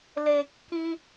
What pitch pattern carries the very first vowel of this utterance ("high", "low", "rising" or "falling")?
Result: high